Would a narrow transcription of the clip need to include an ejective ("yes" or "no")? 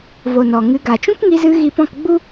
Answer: no